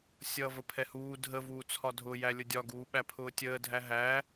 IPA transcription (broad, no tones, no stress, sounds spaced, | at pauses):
sʲ ʌː v ə pʰ ɛ h uː dʱ ə v uː t͡sʰ ɒ dʱ ʊ j æ lʲ ʊ dʲ ɒ ɡ uː ɓ æ pʰ ʊː tʲ əː dʱ æ ɦ æ